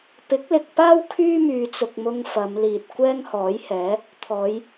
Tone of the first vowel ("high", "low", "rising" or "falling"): rising